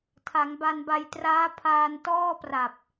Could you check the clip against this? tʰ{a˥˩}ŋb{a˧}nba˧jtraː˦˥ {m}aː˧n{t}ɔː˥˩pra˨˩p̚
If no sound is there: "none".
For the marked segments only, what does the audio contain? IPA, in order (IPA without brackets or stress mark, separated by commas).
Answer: a˩˦, a˧, pʰ, t